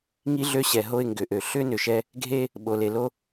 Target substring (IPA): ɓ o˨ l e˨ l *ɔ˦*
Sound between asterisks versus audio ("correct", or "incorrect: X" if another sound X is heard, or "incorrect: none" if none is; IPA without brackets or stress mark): incorrect: o˦